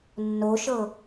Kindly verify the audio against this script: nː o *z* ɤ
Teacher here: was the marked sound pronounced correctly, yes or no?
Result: no